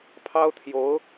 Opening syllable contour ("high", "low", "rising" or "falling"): high